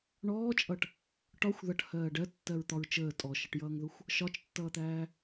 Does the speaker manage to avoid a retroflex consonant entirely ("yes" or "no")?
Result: no